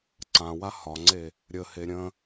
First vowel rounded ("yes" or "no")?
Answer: no